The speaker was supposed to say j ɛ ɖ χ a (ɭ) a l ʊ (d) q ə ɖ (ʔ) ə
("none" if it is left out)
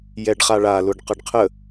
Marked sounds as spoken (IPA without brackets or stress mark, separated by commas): ɭ, ɖ, qʰ